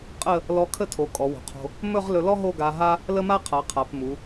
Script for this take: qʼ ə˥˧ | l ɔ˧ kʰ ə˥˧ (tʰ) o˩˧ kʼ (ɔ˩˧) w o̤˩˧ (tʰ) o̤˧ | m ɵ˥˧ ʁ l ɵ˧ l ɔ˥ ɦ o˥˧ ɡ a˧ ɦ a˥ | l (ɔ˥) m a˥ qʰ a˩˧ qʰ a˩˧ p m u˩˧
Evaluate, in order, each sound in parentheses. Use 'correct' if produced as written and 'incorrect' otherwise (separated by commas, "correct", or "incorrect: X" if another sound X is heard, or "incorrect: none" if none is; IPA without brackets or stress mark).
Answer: correct, correct, incorrect: qʰ, incorrect: ə˥